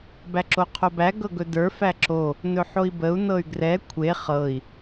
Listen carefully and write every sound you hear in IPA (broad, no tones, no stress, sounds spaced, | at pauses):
b æ ǁ o qʰ o b æ ɡ ɤ ɡ ɵ d ə˞ f æ ǁ o | n ɵ ħ o i̯ b ə u̯ n ɤ y̯ ɡ r ɛ kʷʰ e χ ɤ i̯